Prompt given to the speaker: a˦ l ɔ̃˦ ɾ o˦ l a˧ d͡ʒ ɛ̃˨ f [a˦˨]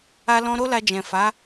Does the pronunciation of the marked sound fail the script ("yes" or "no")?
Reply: yes